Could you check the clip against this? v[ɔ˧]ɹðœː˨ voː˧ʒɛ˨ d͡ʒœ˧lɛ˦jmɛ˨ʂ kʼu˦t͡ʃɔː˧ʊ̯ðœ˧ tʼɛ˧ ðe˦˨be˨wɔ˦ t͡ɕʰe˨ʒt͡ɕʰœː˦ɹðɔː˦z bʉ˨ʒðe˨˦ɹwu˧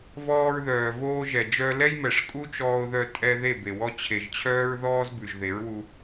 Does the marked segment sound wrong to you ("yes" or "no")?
yes